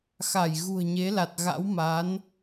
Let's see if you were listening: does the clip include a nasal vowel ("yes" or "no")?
no